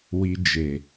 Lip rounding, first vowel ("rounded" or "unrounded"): unrounded